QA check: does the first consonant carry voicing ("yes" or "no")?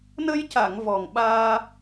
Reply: yes